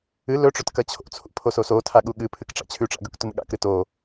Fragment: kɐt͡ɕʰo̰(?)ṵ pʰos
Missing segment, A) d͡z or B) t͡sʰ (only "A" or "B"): B